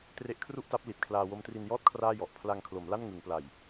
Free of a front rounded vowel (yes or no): yes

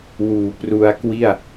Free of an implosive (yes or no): yes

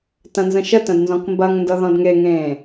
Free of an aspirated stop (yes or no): yes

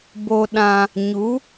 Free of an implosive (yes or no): no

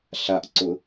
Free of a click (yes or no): no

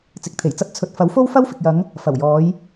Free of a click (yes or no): yes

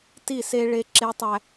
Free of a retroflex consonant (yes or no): no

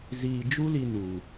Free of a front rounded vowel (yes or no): yes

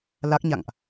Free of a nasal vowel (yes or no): yes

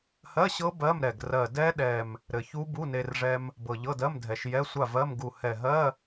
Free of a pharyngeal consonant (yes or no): yes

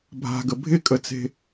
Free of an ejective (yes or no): no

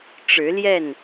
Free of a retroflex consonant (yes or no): no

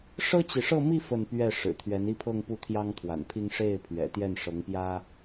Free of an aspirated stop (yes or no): no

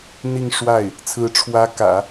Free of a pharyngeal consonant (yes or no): yes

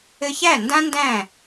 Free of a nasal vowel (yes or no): no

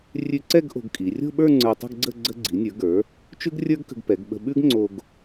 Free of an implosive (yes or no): no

